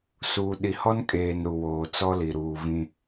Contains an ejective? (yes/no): yes